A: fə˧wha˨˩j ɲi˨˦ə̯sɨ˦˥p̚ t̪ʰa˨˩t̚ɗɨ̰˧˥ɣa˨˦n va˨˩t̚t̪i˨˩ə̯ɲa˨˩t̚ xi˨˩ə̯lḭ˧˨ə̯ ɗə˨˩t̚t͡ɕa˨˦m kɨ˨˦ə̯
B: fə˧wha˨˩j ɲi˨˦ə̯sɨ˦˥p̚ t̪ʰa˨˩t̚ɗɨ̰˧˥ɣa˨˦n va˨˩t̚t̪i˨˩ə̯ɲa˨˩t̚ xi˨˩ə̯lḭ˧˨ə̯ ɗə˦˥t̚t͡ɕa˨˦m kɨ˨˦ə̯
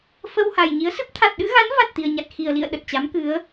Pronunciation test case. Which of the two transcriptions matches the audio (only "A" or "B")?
A